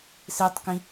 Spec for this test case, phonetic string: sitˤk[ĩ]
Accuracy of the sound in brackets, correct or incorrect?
correct